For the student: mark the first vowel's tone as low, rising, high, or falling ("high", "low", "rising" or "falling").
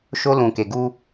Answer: high